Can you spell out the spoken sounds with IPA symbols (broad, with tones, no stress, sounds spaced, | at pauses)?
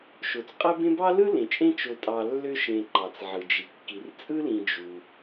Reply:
ʃ o˩ t͡s qʼ æ˦ b ẽ˦ b ɑ˥ l ɯ˥ l ẽ˩ t͡ʃʼ ẽ˦ t͡ʃ o˨ tʼ ɑ˨ lː ø˦ ʃ ẽ˨ ǃ ɑ˩ t͡s ʕ ɯ˩ d͡ʒ i˩ kː i˩ r t͡sʼ ɯ˥ l ĩ˨ d͡ʒ u˩